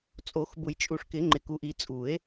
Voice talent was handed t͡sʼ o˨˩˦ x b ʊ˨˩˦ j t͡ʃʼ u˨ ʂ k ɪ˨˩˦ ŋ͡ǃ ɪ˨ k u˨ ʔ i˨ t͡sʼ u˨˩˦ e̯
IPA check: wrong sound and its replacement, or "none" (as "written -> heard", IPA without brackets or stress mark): none